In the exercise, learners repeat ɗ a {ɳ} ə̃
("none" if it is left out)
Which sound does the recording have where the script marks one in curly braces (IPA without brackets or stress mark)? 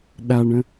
ɳ